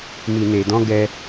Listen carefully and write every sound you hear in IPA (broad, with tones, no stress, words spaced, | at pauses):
mi˨ne˨dɔ̃˧ ɡɛ˧